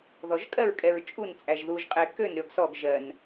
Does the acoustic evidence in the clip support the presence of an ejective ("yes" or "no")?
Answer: yes